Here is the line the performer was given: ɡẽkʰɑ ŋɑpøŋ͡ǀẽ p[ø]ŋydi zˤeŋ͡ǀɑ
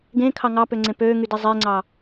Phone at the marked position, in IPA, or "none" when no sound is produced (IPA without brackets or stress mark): øː